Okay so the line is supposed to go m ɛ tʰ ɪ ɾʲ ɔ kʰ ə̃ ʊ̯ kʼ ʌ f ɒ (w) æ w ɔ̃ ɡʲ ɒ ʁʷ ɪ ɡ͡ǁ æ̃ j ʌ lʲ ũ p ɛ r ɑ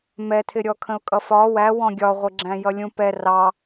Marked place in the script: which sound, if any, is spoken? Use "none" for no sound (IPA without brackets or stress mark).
w